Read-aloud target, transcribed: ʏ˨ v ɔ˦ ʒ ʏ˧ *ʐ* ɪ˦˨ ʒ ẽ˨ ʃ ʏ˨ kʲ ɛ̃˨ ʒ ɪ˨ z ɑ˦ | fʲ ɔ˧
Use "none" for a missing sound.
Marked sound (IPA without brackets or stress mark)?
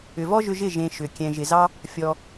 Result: ʒ